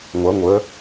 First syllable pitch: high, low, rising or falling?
rising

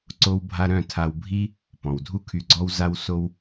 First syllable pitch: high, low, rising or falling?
high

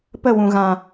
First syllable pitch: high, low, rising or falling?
falling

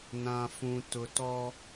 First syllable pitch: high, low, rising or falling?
low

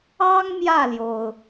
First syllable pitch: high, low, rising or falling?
high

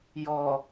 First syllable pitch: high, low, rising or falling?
low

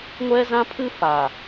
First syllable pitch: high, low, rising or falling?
high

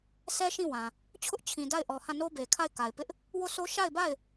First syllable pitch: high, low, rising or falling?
high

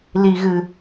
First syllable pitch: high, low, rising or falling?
low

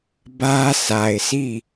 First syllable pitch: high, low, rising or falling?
high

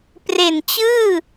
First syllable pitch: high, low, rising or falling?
low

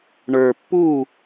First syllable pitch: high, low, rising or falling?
low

